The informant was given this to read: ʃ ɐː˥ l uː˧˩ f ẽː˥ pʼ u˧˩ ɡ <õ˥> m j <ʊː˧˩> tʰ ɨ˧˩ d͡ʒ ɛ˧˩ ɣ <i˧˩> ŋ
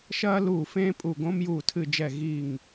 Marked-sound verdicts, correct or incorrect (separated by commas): correct, incorrect, correct